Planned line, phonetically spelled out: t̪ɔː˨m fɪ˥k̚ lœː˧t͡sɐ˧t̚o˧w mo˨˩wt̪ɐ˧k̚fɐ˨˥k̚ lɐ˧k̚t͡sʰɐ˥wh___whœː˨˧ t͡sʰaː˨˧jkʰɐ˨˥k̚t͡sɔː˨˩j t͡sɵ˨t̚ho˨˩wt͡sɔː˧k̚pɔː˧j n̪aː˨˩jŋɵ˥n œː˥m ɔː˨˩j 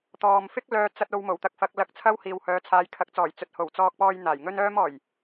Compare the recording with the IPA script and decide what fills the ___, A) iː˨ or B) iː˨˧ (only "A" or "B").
A